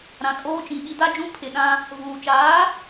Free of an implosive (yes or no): no